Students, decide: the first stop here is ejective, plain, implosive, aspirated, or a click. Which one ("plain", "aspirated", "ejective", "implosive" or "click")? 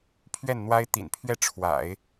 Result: aspirated